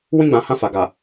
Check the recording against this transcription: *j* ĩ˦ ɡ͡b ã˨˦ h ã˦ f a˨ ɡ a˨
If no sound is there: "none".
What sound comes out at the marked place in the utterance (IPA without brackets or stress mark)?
w